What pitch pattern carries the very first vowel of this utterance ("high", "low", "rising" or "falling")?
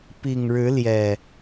low